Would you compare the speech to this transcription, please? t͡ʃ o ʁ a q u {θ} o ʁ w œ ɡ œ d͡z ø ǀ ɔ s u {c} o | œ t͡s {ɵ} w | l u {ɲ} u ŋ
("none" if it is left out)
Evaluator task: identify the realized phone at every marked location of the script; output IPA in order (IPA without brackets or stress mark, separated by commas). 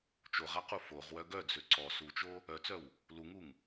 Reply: f, t͡ʃ, œ, ŋ